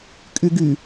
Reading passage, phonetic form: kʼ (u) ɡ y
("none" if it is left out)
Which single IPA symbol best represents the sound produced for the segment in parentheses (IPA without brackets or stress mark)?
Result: y